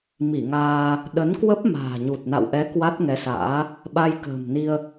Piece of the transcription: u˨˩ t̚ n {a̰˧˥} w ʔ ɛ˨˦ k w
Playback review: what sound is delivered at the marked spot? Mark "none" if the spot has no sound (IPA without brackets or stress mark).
a̰˧˨